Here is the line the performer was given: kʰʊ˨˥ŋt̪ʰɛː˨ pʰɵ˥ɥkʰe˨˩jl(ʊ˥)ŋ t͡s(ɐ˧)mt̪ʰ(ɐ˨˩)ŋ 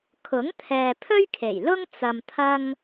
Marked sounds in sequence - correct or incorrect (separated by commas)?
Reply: correct, correct, incorrect